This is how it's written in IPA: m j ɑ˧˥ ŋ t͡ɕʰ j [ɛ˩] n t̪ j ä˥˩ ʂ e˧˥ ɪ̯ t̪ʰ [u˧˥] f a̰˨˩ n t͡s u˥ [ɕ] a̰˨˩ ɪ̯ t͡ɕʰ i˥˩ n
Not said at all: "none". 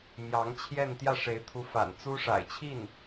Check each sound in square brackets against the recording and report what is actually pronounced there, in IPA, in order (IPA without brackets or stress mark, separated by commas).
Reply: ɛ˥˧, u˧˥, ʂ